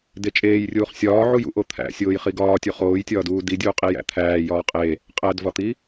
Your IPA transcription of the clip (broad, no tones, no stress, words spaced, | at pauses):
det͡ʃʼeːjrʲuːχ sʲɒː ʕujṵʔo t̪ʰæ̰ sʲoːjχiɡɒːtʲu χoːjtʲɒːduː didʲuːqʼi jæ̰t̪ʰæːjɒː qʼe | qʼædvɒt̪i